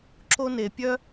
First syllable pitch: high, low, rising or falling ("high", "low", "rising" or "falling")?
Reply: high